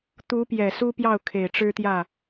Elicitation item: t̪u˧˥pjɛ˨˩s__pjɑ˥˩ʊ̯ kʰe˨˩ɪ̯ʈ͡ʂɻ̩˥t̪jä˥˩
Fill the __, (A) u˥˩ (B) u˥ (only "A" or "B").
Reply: B